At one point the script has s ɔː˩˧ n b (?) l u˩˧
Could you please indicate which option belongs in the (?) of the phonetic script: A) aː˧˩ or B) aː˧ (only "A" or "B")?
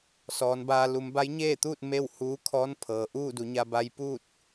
B